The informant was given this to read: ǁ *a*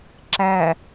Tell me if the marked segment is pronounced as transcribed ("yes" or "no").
no